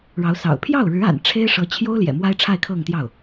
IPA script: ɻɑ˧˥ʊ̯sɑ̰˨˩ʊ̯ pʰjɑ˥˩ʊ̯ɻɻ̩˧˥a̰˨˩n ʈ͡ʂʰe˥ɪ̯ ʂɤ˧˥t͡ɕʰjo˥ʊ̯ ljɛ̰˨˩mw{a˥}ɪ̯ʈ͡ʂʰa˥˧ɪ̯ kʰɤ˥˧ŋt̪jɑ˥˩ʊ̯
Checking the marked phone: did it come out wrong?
no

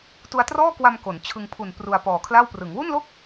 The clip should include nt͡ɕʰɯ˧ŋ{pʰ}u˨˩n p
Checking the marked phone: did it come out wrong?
no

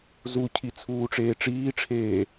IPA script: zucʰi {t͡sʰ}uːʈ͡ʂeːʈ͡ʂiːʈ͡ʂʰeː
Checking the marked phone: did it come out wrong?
no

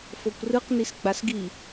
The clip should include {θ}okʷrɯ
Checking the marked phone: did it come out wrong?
yes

